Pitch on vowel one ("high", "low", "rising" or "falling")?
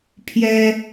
high